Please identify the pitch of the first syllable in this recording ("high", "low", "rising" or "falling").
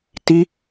high